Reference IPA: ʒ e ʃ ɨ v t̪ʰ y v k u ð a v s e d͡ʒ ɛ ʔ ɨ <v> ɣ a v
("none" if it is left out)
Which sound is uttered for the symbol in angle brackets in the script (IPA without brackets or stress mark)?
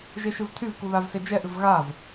v